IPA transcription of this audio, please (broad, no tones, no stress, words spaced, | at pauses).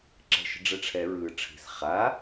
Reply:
ǁɛ̤ʃə̤ɖ͡ʐɛʈ͡ʂʰɛ ɹɯ ʈ͡ʂʰi̤s χa